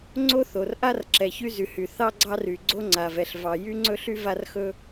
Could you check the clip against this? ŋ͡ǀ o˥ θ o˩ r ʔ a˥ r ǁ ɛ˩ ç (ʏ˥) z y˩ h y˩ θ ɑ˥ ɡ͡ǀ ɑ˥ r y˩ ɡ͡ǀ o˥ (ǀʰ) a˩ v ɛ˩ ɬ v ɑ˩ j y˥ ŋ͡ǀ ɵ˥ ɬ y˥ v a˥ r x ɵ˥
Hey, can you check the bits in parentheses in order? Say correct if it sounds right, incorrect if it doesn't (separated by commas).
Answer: incorrect, incorrect